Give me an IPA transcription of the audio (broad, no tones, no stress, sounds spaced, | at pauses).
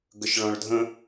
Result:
ɡ ə ʃ ɭ ɔ̃ ɭ dʱ ə̃